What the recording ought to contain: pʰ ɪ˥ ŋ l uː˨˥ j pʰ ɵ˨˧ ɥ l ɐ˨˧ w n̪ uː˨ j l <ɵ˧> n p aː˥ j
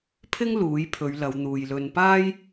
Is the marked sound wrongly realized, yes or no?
no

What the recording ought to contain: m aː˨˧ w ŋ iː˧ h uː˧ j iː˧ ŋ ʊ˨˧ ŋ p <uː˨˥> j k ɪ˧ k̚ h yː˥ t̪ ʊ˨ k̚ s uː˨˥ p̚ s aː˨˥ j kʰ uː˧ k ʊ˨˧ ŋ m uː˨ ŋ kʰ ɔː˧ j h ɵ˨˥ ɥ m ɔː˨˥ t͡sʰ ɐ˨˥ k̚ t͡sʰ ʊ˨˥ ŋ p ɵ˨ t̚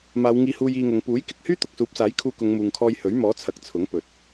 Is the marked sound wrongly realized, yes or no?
no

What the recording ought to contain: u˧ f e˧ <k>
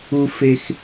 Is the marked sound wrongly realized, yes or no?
yes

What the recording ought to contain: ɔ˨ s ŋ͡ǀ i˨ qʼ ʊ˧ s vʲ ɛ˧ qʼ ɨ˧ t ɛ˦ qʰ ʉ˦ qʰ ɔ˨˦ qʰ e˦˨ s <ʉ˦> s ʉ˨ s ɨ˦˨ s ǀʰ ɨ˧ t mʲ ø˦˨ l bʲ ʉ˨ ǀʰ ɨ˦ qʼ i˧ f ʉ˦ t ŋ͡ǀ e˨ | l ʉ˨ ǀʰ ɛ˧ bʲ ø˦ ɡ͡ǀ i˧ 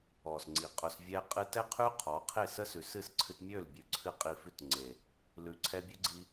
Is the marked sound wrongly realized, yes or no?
yes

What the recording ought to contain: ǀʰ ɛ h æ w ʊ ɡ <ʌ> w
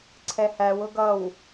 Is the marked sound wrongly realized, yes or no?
no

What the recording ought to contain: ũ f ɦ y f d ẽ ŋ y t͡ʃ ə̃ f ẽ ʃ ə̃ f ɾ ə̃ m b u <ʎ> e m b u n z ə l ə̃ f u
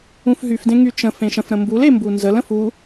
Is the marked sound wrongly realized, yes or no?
yes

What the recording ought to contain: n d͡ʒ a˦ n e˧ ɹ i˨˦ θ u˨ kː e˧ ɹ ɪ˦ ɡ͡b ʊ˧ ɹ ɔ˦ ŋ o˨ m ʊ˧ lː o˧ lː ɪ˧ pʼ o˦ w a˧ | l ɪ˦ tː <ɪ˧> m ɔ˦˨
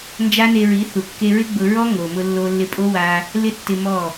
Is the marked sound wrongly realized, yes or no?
no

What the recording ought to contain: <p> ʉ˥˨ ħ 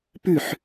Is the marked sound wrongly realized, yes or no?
no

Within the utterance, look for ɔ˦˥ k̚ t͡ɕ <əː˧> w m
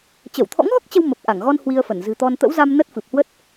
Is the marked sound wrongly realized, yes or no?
yes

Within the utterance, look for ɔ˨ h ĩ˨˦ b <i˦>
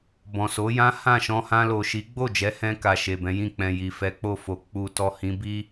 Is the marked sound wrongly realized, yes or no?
no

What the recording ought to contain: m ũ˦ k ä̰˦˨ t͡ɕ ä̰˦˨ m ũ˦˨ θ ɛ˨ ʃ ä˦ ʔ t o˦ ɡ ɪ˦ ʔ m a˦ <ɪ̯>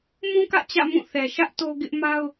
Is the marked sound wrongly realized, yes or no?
yes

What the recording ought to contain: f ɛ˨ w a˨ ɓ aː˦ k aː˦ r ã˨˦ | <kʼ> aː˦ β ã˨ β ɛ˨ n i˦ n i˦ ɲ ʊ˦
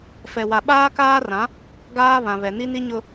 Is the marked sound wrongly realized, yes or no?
yes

